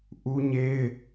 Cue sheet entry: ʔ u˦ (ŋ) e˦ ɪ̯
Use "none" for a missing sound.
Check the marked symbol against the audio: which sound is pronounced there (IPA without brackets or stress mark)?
ɲ